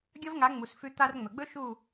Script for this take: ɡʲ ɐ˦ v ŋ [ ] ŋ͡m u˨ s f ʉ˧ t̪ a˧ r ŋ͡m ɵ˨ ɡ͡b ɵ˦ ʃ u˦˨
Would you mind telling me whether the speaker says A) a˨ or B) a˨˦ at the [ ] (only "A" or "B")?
B